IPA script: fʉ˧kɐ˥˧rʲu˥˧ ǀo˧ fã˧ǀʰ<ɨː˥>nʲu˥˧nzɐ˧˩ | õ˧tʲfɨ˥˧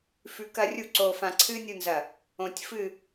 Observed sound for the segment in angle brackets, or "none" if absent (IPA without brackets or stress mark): ɨː˥